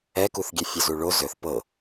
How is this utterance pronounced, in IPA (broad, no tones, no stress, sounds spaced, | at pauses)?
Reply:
ɛ k u θ ɡʲ e fʲ ɵ z u ɭ o z ɵ θ p ɤ